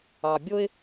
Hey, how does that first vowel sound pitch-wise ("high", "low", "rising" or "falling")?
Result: low